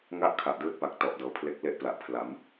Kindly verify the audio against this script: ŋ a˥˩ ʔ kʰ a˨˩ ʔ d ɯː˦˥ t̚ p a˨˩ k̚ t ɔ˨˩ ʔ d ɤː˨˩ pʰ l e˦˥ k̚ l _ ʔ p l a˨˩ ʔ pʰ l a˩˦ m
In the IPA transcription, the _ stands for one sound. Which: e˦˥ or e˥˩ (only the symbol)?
e˦˥